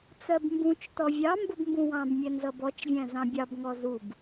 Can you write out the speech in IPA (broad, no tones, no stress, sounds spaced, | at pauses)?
t͡s ɜ b m b ũ t͡ʃ t ɔ vʲ ɑ m b ʊ b m b ũ w ɑ̃ b mʲ ɛ n z ʌ b ɔ t͡ʃ vʲ æ̃ z ɑ̃ bʲ ɑ b ŋ ɔ z u b